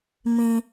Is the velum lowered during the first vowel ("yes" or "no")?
yes